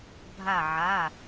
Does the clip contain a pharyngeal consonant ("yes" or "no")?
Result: yes